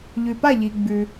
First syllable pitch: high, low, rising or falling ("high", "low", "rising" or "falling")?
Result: low